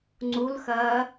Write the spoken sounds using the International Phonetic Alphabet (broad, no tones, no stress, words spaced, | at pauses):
ŋ͡ǀulxɐː